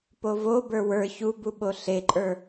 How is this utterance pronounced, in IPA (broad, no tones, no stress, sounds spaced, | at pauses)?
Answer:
p o v o b ə˞ w ə˞ ç u b u ɓ o ɬ e ǃʼ ə˞